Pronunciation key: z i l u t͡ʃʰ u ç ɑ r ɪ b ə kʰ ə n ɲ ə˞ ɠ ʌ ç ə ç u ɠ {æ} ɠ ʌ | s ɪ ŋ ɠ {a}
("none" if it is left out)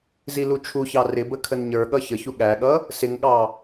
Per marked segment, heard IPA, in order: æ, ɑ

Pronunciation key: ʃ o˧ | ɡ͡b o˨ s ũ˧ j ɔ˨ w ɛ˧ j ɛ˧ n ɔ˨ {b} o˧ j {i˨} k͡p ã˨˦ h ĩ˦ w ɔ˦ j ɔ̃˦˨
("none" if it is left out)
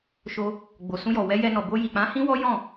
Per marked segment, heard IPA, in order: b, i˨

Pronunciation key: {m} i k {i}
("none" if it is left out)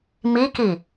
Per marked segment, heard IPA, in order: m, i

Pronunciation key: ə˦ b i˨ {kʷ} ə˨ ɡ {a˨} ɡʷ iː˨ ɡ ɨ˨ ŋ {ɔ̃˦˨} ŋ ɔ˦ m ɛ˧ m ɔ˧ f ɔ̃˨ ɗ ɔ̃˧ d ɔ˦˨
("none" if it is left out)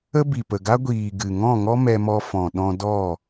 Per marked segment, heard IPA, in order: p, a˦, ɔ̃˦˨

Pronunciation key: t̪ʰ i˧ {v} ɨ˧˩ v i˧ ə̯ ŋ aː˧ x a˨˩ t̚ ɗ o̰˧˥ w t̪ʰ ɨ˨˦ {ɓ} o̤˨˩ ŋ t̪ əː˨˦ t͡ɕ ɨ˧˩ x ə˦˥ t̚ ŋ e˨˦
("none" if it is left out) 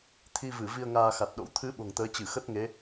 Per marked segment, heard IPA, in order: v, ɓ

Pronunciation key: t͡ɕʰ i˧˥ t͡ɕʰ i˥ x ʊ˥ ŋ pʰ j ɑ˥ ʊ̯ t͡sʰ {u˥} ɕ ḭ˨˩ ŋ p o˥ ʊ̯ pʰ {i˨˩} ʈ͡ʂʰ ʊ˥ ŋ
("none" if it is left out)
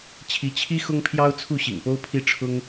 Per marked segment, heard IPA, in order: u˥˩, i˥

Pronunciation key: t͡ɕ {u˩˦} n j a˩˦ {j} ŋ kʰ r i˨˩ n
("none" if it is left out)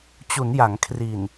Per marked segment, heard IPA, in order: u˩˦, none

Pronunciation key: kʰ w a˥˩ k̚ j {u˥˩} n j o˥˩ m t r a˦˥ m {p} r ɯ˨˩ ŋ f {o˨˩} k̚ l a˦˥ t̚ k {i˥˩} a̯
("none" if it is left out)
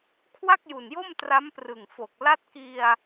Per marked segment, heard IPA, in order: u˨˩, p, o˨˩, i˧

